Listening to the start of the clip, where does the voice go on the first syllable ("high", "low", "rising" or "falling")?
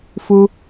high